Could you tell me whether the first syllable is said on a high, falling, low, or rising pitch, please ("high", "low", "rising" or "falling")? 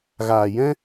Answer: low